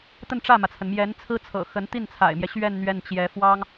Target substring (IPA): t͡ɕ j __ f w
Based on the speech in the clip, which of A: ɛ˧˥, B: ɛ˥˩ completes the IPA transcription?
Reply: A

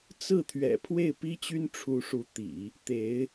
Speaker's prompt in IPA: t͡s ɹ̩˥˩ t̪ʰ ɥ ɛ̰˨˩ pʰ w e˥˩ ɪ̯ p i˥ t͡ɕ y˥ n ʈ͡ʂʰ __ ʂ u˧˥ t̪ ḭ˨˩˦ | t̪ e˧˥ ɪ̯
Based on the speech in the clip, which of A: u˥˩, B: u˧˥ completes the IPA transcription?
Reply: B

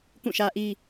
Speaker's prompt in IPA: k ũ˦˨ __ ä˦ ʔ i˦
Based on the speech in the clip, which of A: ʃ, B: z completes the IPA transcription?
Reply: A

